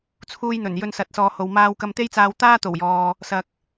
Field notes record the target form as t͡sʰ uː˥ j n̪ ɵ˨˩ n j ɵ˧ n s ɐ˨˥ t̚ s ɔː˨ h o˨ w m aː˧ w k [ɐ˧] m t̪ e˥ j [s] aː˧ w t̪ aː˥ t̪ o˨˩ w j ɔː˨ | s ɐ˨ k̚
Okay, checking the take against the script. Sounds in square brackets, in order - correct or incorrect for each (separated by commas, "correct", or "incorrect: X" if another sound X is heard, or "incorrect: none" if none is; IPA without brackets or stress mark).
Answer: correct, incorrect: t͡s